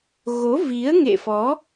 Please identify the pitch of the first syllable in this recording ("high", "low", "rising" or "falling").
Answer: rising